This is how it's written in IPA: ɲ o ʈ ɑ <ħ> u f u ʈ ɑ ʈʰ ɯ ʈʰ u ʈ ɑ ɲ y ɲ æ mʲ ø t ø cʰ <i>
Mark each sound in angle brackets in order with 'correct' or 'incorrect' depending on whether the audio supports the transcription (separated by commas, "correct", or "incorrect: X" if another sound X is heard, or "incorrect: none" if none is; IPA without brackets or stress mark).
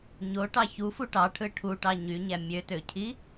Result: incorrect: ç, correct